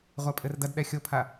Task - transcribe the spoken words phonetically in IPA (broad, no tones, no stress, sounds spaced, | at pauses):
ʁʷ a pʼ ɘ r d ɐ d ɗ ɛ xʲ o pʰ a